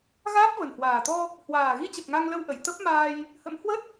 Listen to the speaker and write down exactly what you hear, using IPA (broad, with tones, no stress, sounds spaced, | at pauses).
ɣ aː˦˥ p̚ v ə˨˩ n h w aː˨˩ t̪ ɔ˧ | h w aː˨˩ ɣ i˧ t͡ɕ ə˨˩ p̚ ŋ a˧ ŋ l ə˧ w ʔ ə˧˩ j t̪ ə˦˥ p̚ m aː˧ j | h ə̰˧˥ m h w ə˦˥ t̚